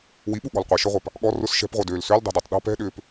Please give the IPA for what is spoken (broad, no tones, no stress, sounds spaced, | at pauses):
w i ɓ u ɠ ɔ̤ l qʷ ɛ ʃ œ ʁʷ a p | ɠ ɔ r ʊ s ʃ ɛ̤ p ʁʷ œ d øː l s ø l dˤ ɛ̤ d ɛ tˤ ɗ ɔ̤ p ɛ̤ ɗ ʏː p